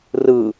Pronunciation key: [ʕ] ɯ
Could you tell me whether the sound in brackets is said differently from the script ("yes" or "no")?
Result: yes